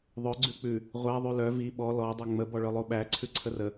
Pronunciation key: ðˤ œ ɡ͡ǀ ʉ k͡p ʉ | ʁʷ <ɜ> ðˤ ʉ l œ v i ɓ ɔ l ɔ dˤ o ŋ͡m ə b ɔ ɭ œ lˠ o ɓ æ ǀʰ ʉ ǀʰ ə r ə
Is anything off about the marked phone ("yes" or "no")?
yes